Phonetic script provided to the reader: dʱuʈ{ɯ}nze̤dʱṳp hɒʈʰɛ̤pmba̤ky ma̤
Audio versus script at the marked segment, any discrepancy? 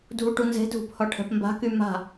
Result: yes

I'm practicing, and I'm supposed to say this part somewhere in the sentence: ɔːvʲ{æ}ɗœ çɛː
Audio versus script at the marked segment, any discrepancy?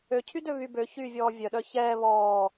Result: yes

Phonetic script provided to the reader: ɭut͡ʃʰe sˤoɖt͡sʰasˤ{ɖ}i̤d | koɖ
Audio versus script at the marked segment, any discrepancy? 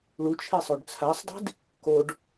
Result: yes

